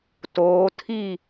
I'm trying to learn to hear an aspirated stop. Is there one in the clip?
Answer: yes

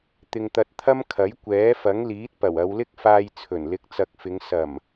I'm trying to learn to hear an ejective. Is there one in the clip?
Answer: no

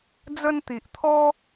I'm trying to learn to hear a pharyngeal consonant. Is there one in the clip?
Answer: no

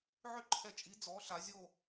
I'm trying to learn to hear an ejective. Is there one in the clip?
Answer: yes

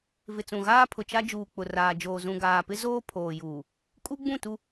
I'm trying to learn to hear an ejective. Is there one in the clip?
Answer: yes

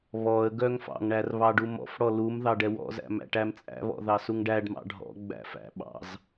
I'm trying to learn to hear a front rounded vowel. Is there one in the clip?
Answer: yes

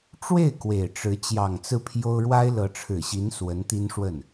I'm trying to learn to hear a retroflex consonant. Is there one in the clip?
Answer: yes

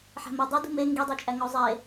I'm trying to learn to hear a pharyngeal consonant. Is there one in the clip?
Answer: yes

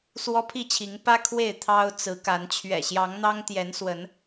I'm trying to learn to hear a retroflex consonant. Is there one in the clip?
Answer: no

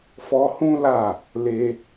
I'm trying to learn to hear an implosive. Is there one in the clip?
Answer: no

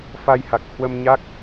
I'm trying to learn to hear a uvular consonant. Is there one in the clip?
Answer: no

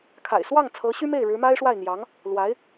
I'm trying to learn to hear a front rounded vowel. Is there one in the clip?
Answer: yes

